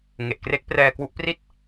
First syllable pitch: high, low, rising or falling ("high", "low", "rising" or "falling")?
low